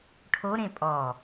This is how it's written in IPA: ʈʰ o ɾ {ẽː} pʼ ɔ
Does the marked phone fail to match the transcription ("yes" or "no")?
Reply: yes